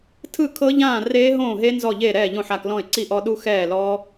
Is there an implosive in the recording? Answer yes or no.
yes